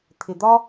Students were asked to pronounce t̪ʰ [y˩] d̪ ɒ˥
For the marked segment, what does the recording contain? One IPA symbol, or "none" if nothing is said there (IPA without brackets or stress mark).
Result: ɪ˩